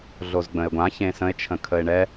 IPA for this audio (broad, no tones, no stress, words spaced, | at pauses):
ɮozɡ͡bə̃e̯ɡʷã çẽsə̃e̯ t͡ʃʰə̃kʰəe̯ɳɛ